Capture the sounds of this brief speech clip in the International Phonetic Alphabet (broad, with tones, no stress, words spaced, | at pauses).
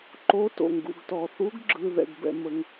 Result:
ǃo˨˥to̰˩ŋɡṵ˩ɡ tɔ˩θu˨˥ɡ ɡ͡ǁɯ˩ ðɛ̰˩ɡbɛ̰˩mə˩ŋ